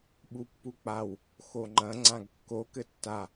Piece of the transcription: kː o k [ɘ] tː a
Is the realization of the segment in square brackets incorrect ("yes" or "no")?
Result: no